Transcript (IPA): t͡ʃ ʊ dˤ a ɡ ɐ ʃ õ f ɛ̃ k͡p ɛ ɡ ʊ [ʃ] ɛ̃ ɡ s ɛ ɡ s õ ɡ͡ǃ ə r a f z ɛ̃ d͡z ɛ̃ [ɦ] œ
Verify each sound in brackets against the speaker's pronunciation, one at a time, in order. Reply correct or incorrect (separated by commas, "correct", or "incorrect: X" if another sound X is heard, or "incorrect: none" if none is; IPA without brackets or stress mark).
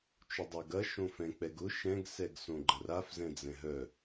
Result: correct, correct